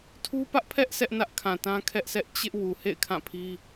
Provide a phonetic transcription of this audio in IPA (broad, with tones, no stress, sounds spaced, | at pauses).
tʰ u˦ p ä˦ ʔ pʰ ɛ˦ ʔ sʰ ɛ˦ ʔ n ä˦ ʔ kʰ ã˨ t ã˦ kʰ ɛ˦ ʔ sʰ ɛ˦ ʔ t͡ɕ ɪ˦ ʔ w u˨ h ḛ˦˨ ɪ̯ kʰ ã˦˨ pʰ i˦